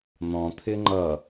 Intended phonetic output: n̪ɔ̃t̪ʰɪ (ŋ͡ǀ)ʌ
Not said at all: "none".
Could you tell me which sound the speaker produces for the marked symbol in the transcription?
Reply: ŋ͡ǃ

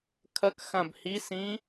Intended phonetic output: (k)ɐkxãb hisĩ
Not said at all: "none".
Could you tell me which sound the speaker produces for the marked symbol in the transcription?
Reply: kʰ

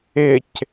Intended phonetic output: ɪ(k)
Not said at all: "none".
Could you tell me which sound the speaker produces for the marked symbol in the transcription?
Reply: c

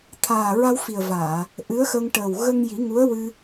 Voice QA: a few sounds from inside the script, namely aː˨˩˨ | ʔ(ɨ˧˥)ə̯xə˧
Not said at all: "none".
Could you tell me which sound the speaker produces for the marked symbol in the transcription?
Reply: ɨ˧˥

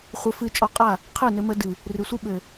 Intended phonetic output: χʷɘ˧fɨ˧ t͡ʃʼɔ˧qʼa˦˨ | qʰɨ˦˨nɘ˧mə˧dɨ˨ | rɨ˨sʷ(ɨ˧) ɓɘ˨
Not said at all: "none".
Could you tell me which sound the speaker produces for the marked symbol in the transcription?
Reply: ɨ˧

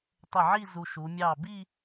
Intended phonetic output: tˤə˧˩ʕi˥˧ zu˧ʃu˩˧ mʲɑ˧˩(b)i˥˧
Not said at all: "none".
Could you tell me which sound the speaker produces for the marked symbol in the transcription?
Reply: b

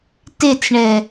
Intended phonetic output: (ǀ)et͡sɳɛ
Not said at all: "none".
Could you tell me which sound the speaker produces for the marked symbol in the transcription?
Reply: t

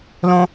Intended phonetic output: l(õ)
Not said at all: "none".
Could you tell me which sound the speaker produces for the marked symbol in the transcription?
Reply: õ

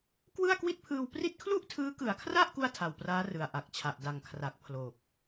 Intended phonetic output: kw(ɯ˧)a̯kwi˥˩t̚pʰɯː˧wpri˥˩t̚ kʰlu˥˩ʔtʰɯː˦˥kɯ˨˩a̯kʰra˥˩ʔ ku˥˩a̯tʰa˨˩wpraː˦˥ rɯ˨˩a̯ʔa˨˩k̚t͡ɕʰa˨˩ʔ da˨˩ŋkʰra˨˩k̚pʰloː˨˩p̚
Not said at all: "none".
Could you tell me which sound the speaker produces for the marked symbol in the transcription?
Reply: ɯ˥˩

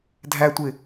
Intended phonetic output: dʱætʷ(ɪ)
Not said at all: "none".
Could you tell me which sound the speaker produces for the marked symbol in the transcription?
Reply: ɪ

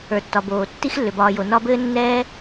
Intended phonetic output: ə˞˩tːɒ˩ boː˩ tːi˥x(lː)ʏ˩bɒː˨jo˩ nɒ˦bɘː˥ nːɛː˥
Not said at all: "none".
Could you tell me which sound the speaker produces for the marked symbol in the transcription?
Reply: lː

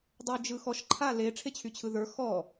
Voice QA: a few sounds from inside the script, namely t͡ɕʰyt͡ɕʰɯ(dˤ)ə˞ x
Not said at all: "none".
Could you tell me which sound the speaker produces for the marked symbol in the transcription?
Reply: ð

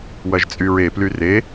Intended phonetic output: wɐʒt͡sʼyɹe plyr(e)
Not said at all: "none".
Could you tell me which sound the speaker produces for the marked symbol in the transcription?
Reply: e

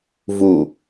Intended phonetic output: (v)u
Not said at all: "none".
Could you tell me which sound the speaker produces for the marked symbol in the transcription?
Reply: v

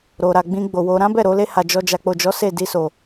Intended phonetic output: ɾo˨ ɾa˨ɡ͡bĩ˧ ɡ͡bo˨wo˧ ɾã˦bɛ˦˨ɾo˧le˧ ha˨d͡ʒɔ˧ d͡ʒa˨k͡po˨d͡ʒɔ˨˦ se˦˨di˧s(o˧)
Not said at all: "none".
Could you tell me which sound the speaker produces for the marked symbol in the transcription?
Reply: o˨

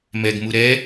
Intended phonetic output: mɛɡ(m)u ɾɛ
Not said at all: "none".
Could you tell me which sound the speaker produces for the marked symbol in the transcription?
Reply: m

